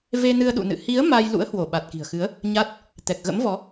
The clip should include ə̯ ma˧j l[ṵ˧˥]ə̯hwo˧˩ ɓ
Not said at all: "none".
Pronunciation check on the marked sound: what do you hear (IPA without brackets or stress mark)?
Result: ṵ˧˥